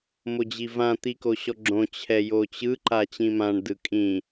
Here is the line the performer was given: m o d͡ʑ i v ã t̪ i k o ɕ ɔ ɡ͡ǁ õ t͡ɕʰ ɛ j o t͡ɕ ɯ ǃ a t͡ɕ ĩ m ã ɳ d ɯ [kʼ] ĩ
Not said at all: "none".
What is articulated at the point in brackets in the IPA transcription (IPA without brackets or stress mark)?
kʼ